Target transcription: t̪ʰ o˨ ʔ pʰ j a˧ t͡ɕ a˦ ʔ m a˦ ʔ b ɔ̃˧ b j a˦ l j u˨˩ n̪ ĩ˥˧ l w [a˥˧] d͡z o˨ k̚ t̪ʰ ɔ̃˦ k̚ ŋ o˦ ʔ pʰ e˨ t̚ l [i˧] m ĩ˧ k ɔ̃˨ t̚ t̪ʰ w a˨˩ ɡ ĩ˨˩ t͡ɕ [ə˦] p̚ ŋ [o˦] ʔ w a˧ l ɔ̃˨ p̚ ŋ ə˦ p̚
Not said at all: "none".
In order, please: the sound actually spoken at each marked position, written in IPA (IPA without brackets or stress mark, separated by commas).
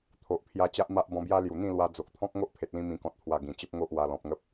a˧, ĩ˧, ə˦, o˦